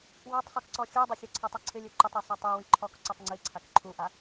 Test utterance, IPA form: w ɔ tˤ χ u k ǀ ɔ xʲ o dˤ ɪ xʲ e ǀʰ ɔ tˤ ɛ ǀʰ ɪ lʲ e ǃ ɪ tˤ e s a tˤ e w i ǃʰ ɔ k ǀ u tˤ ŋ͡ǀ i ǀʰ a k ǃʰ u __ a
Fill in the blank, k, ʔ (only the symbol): ʔ